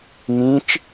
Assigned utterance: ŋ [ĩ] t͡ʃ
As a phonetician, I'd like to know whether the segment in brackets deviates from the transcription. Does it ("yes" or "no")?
no